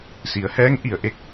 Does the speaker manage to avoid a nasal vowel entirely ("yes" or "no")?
yes